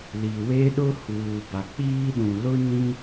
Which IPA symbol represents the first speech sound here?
l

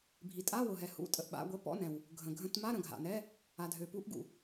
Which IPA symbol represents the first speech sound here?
bʱ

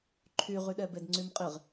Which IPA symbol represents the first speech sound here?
ǃʰ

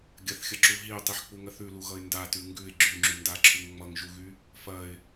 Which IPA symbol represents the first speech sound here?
ɡʲ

